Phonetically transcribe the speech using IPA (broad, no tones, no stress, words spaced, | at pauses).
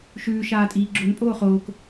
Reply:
ʃʉː ʃaːtʼiːɡ͡ǁon pʼoːχoːk